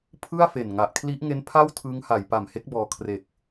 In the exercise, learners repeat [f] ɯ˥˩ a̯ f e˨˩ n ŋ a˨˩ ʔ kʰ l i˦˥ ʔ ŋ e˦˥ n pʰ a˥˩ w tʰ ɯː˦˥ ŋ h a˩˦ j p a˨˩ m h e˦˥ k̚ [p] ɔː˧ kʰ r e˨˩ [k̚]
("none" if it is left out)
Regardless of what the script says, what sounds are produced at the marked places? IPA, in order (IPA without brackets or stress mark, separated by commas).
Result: pʰ, b, k̚